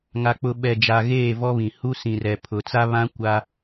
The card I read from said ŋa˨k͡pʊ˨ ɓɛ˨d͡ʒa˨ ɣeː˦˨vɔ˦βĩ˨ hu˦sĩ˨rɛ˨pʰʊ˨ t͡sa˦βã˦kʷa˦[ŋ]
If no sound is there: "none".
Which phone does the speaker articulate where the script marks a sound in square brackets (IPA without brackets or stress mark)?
none